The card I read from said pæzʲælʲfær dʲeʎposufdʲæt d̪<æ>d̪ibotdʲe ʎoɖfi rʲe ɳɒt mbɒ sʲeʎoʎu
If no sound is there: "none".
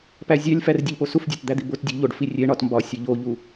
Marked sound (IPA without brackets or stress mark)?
æ